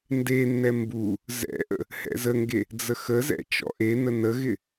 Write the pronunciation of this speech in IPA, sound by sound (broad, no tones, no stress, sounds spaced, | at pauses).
n d e nː ɛ m b u | z ɛ̰ ʔ ə̰ | h ɛ̰ z ə ŋ ɡ e | d͡z ə x ə z ɛ̰ t͡ʃ ɔ̰ ʔ e n ə n ə ɣ ɪ